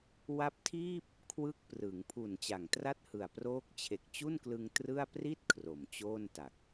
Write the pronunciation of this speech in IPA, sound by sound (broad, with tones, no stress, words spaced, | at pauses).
wa˦˥p̚tʰiː˥˩p̚ | kʰwɯ˦˥k̚prɯ˩˦ŋpʰu˨˩n t͡ɕa˨˩ŋtra˥˩t̚hɯ˨˩a̯ proː˦˥k̚t͡ɕʰe˨˩k̚t͡ɕu˥˩nklɯ˧ŋ trɯ˥˩a̯ pri˥˩t̚ kʰro˨˩mt͡ɕoː˥˩nta˨˩k̚